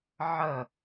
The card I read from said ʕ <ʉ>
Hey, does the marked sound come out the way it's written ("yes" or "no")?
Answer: no